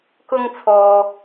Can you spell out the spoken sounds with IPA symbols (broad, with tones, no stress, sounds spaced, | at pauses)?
k ʊ˧ ŋ t͡sʰ ɔː˨